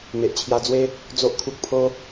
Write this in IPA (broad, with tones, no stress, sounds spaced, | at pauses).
m e˨ ʔ t͡ɕʰ j a˧ d͡z w e˦ | d͡z o˦ ʔ kʰ u˦ k̚ pʰ o˦